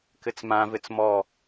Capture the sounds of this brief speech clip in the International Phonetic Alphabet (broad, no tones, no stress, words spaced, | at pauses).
kɘt͡smãvɘt͡s mɔ